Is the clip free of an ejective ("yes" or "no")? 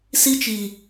yes